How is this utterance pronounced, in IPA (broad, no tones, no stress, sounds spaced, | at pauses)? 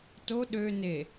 t o ɗ ø n e